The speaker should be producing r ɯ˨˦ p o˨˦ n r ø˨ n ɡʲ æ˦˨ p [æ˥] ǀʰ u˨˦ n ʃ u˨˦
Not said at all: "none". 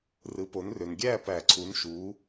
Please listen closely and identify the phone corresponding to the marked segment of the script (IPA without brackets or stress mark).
æ˨˩˦